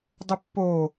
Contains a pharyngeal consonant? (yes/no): no